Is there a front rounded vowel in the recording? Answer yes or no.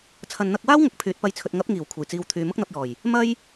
yes